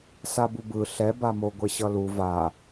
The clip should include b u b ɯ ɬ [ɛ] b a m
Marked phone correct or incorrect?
correct